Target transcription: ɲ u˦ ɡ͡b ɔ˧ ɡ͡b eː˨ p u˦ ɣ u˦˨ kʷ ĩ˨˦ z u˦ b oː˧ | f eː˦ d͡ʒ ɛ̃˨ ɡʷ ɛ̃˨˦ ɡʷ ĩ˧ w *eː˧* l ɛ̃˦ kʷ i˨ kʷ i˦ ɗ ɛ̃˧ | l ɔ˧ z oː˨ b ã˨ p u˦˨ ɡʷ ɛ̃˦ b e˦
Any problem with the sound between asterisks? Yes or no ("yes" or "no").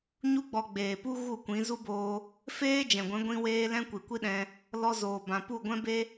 no